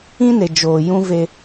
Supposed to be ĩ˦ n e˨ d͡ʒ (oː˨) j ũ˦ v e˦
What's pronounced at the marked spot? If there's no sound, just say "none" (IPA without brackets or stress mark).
oː˨